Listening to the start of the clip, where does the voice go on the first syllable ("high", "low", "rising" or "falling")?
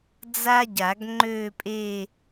high